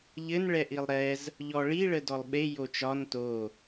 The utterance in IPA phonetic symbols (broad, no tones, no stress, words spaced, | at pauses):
ʎɘn ɭɛʔilˠɾɛz | ʎɔɭi ɭədɔlˠɓe jot͡ʃɒn to